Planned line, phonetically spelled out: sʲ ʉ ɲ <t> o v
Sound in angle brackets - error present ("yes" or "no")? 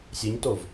no